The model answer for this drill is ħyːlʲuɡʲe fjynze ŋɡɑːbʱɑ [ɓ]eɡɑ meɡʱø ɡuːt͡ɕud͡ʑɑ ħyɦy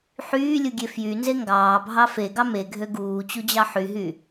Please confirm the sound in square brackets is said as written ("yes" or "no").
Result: no